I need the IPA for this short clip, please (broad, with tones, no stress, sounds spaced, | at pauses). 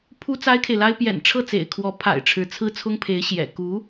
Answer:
pʰ u˥ t͡s a˥ ɪ̯ kʰ e˨ ɪ̯ l a˥ ɪ̯ p j ɛ̰˨˩ n ʈ͡ʂʰ ɤ˥˩ t͡s ḛ˨˩ ɪ̯ kʰ w ɔ˧˥ pʰ a̰˨˩ ɪ̯ ʈ͡ʂʰ ɻ̩˧˥ t͡sʰ ɹ̩˥ t͡sʰ ʊ˥ ŋ pʰ e˧˥ ɪ̯ ɕ j ɛ̰˨˩ k u˧˥